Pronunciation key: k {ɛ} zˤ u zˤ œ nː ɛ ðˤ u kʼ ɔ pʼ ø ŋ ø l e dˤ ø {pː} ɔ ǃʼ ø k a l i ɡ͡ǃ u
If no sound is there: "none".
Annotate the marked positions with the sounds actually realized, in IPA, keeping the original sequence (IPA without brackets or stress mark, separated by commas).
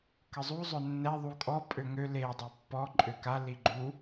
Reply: ə, pː